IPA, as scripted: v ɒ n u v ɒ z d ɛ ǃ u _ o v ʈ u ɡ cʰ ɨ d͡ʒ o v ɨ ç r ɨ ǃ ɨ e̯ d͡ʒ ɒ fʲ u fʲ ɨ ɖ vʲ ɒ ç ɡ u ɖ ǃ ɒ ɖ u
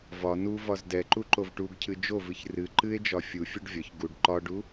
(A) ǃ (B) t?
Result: A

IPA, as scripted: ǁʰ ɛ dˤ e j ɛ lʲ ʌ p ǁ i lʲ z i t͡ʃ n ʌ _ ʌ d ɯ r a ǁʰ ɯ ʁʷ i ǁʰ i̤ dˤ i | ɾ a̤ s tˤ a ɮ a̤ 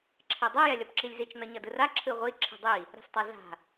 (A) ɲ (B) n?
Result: A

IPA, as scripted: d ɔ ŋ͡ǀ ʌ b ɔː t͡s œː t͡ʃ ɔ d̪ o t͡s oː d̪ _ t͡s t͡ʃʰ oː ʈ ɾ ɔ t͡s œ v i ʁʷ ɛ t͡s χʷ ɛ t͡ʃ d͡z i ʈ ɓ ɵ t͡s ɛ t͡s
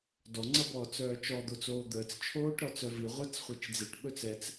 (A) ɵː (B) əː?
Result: B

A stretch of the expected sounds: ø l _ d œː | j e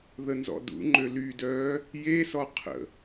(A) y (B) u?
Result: A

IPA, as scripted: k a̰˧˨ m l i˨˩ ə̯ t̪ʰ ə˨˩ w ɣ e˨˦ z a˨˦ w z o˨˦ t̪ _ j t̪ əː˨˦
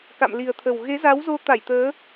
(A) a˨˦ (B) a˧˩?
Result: B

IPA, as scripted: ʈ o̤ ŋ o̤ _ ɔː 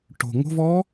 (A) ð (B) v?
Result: B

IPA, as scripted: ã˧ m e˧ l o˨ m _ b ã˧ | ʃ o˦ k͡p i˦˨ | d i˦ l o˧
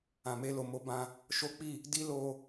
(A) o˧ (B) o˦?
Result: A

